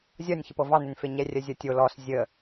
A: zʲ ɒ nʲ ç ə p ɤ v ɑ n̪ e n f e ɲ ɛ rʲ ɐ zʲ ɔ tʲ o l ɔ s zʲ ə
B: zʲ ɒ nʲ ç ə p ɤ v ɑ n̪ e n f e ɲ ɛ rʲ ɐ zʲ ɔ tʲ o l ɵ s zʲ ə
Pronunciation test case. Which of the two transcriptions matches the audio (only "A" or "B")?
A